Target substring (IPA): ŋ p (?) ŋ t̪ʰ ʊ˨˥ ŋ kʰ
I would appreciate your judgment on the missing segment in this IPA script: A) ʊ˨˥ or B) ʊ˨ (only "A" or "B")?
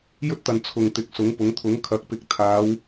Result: A